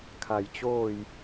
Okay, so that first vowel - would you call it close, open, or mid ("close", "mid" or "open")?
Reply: open